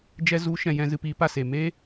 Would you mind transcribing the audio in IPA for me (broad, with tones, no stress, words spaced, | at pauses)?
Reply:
d͡ʒɛ˧zu˨˦ʃɛ̃˨ jɛ̃˧ zɨ˧piː˧ pa˦˨seː˨meː˦